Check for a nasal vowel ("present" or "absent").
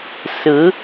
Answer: absent